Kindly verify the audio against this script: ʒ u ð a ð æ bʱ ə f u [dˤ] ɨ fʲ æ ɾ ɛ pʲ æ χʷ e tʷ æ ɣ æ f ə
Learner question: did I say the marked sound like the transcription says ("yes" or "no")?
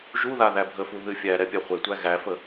no